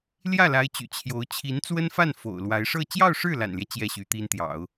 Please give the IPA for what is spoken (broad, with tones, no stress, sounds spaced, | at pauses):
l j ä˥˩ l a˧˥ ɪ̯ t͡ɕ y̰˨˩ t͡ɕʰ j o˧˥ ʊ̯ t͡ɕʰ i˧˥ n t͡s w ə˥ n f a˥˩ n f o̰˨˩ ʊ̯ l w a˧˥ ɪ̯ ʂ ɤ˥˧ t͡ɕ j ɑ˥˧ ʊ̯ ʂ ɻ̩˥˩ l a̰˨˩ n l j ɛ˦ t͡ɕ j ɛ˥˩ ɕ y˧˥ t̪ i˥ n t̪ j ɑ̰˨˩˦ ʊ̯